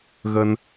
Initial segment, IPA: ɣ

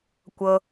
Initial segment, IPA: kʷ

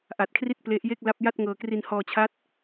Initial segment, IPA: ʔ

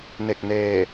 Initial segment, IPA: n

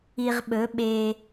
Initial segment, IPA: i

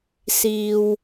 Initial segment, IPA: s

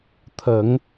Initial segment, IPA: t̪ʰ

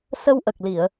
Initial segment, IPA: s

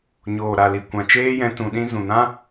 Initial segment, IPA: ɲ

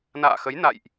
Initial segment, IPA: n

